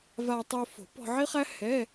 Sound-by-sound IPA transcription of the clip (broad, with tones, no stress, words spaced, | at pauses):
va˧ tˤo˧fo̤˨˩˦ pɔ̤˧ʕi˥χæ˥hɛ˧˥˧